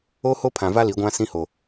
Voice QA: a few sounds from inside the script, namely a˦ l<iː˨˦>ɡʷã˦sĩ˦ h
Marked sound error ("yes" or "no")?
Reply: yes